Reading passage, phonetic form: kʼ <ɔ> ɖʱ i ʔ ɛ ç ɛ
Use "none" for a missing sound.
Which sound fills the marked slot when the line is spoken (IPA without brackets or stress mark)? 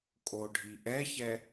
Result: o